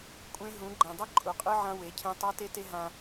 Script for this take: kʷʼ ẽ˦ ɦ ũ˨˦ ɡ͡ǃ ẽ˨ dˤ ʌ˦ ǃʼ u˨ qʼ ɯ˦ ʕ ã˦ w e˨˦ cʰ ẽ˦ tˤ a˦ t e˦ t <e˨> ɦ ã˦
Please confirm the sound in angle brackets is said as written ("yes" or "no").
no